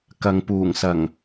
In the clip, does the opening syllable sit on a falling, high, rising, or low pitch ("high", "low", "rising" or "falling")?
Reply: low